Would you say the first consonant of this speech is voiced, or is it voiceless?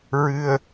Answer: voiced